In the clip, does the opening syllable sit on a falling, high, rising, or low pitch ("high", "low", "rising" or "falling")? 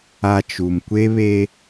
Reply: low